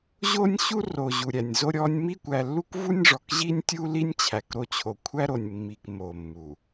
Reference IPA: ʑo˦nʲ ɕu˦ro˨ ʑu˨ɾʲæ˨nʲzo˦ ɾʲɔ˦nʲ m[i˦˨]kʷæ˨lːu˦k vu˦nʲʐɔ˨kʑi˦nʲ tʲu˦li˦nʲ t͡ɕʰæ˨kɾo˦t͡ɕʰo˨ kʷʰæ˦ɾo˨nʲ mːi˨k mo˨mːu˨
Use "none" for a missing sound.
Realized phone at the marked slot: i˦˨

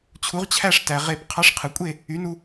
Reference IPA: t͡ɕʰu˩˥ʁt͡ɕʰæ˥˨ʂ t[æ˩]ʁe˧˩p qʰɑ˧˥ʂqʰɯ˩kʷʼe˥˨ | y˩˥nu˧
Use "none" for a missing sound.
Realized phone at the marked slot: æ˩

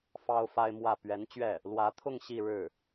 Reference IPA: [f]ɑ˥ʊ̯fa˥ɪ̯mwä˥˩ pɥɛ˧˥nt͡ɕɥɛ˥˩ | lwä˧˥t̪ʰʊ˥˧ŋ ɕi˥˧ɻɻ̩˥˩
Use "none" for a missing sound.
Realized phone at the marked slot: f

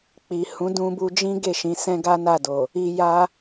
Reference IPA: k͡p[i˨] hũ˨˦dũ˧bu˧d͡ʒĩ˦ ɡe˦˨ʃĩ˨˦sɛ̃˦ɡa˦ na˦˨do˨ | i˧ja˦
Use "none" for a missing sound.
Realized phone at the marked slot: i˨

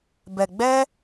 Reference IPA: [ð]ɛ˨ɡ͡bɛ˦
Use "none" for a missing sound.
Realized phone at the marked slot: b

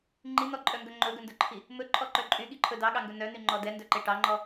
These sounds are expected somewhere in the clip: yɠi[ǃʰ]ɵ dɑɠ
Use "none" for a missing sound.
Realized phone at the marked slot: ǃʰ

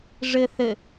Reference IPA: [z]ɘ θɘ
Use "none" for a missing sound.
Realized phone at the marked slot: ʐ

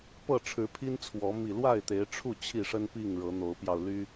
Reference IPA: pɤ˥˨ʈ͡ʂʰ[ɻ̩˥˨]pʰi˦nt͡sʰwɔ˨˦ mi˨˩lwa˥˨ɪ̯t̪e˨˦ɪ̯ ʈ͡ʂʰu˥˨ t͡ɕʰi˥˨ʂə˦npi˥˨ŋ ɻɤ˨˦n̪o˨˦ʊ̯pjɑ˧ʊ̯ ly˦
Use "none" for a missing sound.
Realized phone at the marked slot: ɻ̩˨˦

